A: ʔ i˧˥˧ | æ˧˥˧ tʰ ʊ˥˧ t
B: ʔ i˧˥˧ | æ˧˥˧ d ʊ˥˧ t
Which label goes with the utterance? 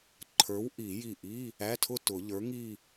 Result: A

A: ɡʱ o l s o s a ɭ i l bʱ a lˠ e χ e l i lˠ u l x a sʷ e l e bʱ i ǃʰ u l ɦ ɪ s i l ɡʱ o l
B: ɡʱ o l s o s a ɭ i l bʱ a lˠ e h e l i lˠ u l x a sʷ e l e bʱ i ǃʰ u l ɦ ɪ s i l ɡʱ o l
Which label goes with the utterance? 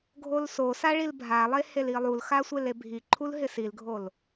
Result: B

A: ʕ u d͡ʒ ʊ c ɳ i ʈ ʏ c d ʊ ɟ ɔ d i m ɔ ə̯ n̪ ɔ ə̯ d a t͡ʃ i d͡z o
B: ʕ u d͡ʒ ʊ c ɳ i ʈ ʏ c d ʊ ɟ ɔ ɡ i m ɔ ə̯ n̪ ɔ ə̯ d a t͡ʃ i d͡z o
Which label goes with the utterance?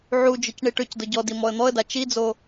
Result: A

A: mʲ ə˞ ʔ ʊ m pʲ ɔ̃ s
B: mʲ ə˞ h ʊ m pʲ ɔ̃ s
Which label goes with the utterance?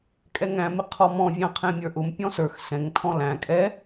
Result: A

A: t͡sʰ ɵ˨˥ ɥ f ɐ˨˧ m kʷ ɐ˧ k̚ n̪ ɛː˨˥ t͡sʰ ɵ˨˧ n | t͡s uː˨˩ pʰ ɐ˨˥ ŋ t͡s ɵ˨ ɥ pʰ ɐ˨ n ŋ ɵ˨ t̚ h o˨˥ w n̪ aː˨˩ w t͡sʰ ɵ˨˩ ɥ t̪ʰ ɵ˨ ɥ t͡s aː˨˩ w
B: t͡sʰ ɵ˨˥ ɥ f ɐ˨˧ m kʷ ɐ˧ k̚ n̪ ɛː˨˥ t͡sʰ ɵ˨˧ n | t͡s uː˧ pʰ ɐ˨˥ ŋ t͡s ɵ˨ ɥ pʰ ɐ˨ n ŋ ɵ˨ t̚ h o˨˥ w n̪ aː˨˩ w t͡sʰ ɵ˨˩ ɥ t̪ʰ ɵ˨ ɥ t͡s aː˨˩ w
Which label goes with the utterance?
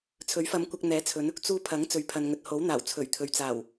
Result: B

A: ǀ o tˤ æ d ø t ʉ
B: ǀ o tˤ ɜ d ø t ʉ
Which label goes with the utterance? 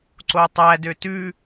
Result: A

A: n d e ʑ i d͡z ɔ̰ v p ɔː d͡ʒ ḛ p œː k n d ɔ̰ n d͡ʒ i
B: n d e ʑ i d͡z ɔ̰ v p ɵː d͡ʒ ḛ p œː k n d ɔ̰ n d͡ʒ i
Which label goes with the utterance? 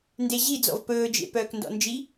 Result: B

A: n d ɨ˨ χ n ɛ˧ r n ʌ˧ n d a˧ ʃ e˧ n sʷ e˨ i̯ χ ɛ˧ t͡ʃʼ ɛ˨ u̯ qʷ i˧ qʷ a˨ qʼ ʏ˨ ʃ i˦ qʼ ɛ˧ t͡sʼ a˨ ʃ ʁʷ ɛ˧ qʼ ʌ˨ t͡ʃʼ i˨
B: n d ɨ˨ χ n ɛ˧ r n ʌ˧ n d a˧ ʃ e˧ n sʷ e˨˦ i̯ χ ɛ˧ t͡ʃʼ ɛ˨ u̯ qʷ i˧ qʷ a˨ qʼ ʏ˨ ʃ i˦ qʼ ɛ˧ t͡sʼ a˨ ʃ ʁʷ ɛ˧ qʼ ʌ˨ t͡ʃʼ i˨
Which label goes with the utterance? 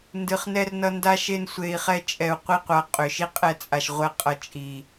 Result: A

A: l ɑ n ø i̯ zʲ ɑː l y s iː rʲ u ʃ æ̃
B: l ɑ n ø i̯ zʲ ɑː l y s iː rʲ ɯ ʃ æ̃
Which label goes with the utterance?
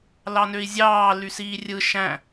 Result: B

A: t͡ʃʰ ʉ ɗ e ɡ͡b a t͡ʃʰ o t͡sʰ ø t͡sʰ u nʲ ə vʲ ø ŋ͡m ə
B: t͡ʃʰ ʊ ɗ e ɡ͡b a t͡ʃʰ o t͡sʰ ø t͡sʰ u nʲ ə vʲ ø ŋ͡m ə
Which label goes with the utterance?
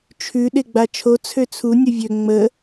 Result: A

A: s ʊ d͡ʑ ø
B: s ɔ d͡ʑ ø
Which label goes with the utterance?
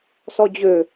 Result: B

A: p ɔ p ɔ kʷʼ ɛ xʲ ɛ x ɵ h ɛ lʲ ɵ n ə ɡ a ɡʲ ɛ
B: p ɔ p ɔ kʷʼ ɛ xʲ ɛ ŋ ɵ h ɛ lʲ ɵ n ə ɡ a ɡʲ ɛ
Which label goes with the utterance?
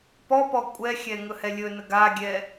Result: B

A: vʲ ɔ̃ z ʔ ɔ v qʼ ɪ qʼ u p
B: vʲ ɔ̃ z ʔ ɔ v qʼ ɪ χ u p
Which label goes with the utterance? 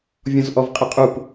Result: A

